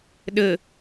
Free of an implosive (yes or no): no